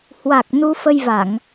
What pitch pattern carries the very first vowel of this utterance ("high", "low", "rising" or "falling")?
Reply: low